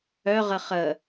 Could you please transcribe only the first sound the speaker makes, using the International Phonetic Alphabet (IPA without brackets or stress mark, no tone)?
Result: œ